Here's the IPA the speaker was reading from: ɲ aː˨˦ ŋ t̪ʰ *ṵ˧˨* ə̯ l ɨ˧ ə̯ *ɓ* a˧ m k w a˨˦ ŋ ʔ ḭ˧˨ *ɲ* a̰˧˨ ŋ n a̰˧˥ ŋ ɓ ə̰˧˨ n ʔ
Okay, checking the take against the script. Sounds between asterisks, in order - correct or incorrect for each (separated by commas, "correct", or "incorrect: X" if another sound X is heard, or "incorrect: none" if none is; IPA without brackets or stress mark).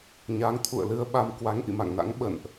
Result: correct, correct, incorrect: m